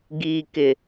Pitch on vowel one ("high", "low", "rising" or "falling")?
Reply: low